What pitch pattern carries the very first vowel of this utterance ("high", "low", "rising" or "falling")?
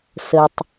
low